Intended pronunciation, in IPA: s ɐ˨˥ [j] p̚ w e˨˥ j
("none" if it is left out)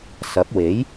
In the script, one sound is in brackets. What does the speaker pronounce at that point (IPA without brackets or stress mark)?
none